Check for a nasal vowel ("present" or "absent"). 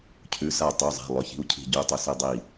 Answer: absent